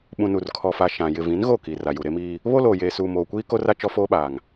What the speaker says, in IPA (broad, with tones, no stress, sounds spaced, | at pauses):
ɓ ũ˨ n u˨ r kʰ ɔ˨ f a˨ ʃ ã˨ j ɪ˨ v ĩ˨˦ n ɣ o˦˨ k i˨ r a˨ j u˨ ɾ e˦ m iː˦ | β o˦ l oː˨ j eː˨ s uː˨ m oː˨ kʷ iː˦ k o˦ r a˦ t͡ʃ ɔ˦ f oː˦ ɓ aː˨ ŋ